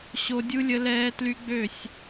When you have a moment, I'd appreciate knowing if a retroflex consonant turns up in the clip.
no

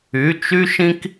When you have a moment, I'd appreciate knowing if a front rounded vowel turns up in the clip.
yes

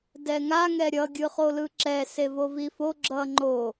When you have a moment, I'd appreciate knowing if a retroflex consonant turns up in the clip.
no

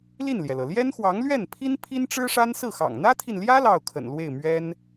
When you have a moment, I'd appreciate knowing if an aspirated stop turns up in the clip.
yes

